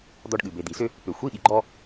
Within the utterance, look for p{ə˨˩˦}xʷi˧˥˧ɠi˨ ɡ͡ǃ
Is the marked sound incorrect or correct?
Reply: incorrect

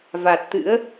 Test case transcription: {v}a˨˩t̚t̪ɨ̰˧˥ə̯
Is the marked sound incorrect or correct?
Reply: correct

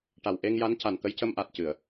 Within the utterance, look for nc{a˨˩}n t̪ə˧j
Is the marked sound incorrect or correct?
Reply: correct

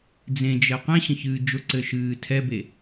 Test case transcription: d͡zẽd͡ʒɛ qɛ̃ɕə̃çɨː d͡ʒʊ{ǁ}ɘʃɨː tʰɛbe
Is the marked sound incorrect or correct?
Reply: incorrect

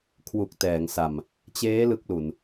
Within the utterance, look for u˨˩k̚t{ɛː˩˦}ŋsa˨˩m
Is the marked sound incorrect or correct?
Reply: correct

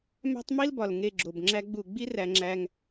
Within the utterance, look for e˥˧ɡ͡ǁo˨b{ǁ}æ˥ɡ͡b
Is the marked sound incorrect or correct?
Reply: incorrect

